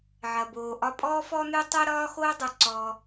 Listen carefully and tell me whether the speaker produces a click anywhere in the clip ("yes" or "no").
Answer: yes